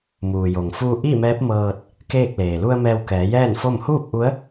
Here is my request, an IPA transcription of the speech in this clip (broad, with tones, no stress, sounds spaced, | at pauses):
m uː˩ j o˩ ŋ f uː˧ ʔ i˥˨ m ɛː˧˥ p̚ m ɤː˧ t̚ | k eː˥˨ k̚ l eː˩ l u˧ ə̯ m ɛː˧ w k ɛː˩˧ j ɛː˥˨ n f o˥˨ m h uː˥˨ p̚ ʔ u˧˥ ə̯